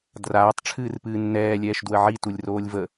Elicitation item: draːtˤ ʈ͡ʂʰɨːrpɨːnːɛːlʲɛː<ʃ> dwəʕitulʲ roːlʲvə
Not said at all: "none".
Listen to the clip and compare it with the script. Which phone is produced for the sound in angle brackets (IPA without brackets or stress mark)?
ʃ